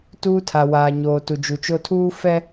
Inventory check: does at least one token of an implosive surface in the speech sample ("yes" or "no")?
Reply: no